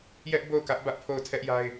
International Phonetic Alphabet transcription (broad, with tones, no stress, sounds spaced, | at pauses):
j ɛ˦ ʔ b o˦˨ ʊ̯ k ä˦ ʔ b ä˦ ʔ pʰ o˦˨ ʊ̯ tʰ ɛ˦ ʔ j a˦ ɪ̯